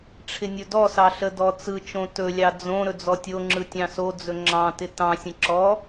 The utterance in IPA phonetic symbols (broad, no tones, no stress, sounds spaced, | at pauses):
ʈ͡ʂʰ ɪ nʲ ɵ d ɔ s ɑ ɬ ə d ɔ t͡s ɯ t͡ʃ õ t ɵ lʲ ɑ d͡z õ ɾ ɵ d͡z ɔ tʲ o ŋ͡ǁ ɯ tʲ ɑ̃ s o d͡z ɵ ŋ͡ǁ ɑ̃ t ɪ t ɑ̃ sʲ ə̃ ǁ ɔ